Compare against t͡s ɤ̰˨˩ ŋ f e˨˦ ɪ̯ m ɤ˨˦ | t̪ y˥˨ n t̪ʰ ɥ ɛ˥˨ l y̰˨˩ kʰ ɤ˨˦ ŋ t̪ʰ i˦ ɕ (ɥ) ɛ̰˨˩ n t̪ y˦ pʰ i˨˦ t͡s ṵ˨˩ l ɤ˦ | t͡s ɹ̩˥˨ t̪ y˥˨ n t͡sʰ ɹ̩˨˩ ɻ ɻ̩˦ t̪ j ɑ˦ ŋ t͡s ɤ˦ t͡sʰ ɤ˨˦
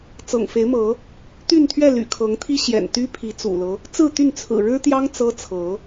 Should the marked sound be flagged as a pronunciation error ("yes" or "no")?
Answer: yes